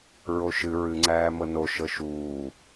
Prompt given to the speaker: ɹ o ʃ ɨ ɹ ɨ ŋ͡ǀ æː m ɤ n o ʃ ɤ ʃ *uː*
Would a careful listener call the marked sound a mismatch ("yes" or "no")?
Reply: no